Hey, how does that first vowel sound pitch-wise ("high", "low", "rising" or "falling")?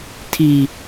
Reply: low